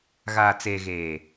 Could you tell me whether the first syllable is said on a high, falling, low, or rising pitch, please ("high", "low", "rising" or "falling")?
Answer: low